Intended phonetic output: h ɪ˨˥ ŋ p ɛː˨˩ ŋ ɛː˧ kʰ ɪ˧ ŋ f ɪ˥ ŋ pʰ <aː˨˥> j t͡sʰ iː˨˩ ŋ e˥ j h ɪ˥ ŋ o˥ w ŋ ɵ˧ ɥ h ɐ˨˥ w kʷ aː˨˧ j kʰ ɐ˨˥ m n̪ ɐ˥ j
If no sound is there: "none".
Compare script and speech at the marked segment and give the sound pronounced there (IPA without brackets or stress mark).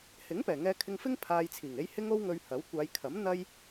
aː˧